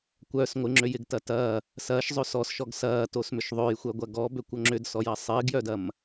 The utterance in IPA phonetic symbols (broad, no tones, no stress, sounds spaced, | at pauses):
kʷ œ s ŋʷ ɪ ŋ͡ǁ ø j ɪ ɡ t ɐ t ɐː | s ɐː ʃ zˤ ø s ɔ s ʃ ɔ ɡ s ɐː t o s m ʏ ʃ ðˤ ø j xʷ œ ɡʷ ɐ ɡ ɔ b ø kʷ o ŋ͡ǁ ʏ d s ɔ j ɐ sˤ ɪː ɡ j œ d ɐ m